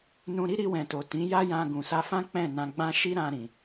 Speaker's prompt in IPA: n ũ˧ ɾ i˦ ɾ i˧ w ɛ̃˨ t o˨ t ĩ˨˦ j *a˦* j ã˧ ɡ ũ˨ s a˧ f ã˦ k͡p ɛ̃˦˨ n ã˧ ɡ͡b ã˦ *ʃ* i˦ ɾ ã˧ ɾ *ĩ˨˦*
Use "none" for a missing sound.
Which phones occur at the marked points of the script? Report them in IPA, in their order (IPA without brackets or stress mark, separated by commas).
a˦, ʃ, ĩ˨